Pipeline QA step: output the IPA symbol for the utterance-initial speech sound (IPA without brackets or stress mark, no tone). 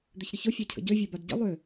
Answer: d̪